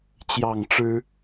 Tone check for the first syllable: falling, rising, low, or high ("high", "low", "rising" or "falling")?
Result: falling